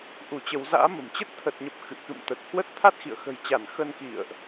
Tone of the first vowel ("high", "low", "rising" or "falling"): rising